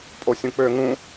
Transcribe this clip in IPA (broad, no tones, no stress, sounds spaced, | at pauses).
pʼ o sʲ ũ k͡p ø ŋ ũ